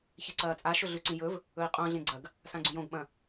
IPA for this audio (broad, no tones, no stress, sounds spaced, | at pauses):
ç e ǀ ɐː t͡sʼ a ʃ ɵ ɮ ʉ ǀ ĩ j ɵ v | ɵ i̯ qʼ õ ɮ ẽ ɡ͡ǀ ɐ ɡ | s ã ɡ͡ǀ ũ j õ ɡ ɓ ɐ̃